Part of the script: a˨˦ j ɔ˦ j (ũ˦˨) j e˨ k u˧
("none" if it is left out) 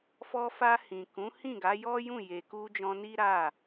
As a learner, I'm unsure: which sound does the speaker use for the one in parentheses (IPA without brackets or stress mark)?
ũ˦˨